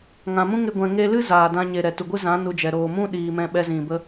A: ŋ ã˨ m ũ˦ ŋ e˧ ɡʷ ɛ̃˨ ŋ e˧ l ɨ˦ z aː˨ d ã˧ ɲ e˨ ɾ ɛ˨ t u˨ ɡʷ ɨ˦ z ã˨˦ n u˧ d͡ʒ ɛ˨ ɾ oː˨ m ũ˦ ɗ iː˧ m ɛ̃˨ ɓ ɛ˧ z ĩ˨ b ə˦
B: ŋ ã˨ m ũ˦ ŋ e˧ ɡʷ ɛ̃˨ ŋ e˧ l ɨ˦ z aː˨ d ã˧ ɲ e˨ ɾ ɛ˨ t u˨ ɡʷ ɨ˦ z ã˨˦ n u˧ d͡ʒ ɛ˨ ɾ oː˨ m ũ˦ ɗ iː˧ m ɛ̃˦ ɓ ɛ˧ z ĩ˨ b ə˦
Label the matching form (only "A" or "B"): B